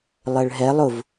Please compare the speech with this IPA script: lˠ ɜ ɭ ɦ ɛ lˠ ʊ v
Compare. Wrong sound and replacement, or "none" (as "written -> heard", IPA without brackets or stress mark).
none